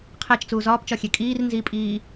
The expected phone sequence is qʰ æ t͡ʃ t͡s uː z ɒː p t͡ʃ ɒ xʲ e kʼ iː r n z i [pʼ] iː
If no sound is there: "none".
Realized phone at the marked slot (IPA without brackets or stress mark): pʼ